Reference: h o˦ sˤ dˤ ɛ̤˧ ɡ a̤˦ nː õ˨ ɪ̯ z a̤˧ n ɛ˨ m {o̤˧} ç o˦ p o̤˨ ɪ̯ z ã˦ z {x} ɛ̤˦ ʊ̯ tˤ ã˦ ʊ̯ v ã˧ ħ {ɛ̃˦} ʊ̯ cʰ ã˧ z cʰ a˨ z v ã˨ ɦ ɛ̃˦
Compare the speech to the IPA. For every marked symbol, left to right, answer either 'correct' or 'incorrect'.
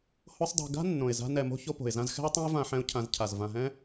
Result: correct, correct, incorrect: ɛ̃˧

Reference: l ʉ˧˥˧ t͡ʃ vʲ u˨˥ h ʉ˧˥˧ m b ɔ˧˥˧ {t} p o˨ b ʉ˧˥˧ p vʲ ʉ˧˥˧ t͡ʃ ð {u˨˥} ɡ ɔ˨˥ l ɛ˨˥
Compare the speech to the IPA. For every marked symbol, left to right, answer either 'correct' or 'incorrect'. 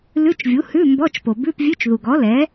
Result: incorrect: t͡ʃ, incorrect: u˨

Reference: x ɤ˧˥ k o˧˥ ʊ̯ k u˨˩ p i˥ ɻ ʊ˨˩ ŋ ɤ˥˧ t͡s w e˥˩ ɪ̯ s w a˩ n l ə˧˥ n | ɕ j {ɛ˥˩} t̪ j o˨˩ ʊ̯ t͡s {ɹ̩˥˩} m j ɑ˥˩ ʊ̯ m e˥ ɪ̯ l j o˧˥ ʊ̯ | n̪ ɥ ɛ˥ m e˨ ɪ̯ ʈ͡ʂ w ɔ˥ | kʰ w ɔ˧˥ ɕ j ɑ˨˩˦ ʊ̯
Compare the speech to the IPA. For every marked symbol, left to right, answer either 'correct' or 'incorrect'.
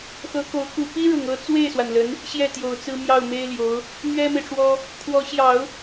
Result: correct, incorrect: ɹ̩˥

